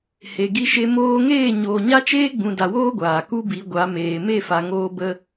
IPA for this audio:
h e˨ ɡ i˧ ʃ e˧ m oː˧ ŋ eː˦˨ ɲ oː˨ ɲ a˦ t͡ʃ eː˦ ɡ͡b ũ˨ d a˨ w oː˦ ɡʷ aː˨ k u˦ b i˨˦ ɡʷ a˨˦ m eː˨ m e˦˨ f a˨ ŋ oː˧ b ə˧

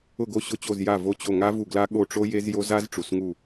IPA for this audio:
ʊ˦˨ ɡ o˦˨ ɕ ʊ˦˨ t͡ɕ o˦˨ z j a˦˨ v o˦˨ t͡ɕ o˦˨ ŋ a˦˥ v u˦˨ ɡ l a˦˥ ɠ o˦˨ ʈ͡ʂ o˦˥ j e˦˥ z j o˦˥ z a˦˥ z ʈ͡ʂ u˦˨ s ŋ u˦˨

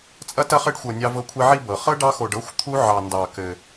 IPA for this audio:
t͡sʼ ɐ˦ t ɐ˦ χ ɘ˦ ɖ xʷ ɤ˧ nʲ ɑ˦ v ɤ˦ kʷʰ i˦ ʕ i˧ b ɤ˨ χ ɤ˦ ɖ ɑ˦ x o˧ ɖ ɤ˦ xʷ t̪ʰ u˦ ʕ ɑ˧ n d ɑ˧ k ɘ˧

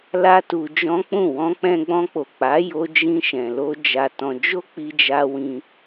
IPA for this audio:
l a˦ t u˧ d͡ʒ ɔ̃˦ k͡p ũ˦˨ w ɔ̃˧ k͡p ɛ̃˧ ɡ͡b ɔ̃˧ k͡p o˨ k͡p a˨˦ j o˧ d͡ʒ ĩ˧ ʃ ɛ̃˨ l o˧ d͡ʒ a˧ t ɔ̃˧ d͡ʒ o˦ k͡p i˧ d͡ʒ a˧ w ĩ˧

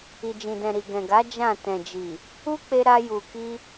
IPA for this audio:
i˨ d͡ʒ ĩ˨ d ɛ̃˨ ɾ i˨ ɡ ɛ̃˨ ɡ a˨˦ d͡ʒ ã˦˨ t ɛ̃˨ d͡ʒ i˨ | u˦ k͡p e˧ ɾ a˧ j u˨ k i˧

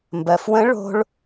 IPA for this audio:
m b ɜ˩ f w ə̃˧˥ ɭ o̤˧ ɭ

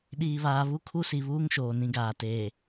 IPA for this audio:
ɗ iː˨ β aː˨ β u˦ kʰ u˦ s i˨ β uː˦ ŋ ʃ oː˨ n ĩ˦ ɡ aː˨ t eː˨

